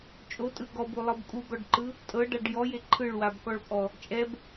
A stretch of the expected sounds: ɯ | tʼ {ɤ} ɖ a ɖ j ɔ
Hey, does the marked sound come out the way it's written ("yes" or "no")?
yes